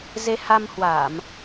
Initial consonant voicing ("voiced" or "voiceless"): voiced